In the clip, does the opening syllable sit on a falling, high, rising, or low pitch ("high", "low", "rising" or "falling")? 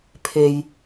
low